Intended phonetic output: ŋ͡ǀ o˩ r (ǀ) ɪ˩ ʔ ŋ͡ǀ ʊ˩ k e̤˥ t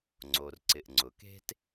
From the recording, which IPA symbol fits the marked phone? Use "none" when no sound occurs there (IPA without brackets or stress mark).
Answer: ǀ